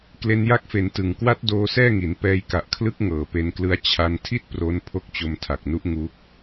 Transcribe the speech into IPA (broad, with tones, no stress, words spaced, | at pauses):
kle˧nja˦˥k̚fe˩˦n tɯ˨˩ŋ kwa˦˥t̚ doː˦˥sɛː˥˩ŋi˩˦n pɛː˧jka˨˩ʔkʰlɯ˦˥k̚ ŋɤː˨˩pe˧nklɯ˦˥a̯ t͡ɕʰa˧ntʰi˥˩t̚ pro˦˥n pʰo˦˥k̚t͡ɕo˧mtʰa˨˩k̚nu˦˥ʔ ŋu˦˥k̚